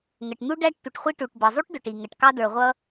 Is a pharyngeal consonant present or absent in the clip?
absent